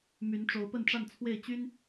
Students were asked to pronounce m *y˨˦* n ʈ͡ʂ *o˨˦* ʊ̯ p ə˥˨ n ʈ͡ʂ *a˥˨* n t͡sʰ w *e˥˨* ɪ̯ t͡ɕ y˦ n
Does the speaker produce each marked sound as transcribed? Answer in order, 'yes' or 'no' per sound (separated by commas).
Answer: yes, yes, yes, yes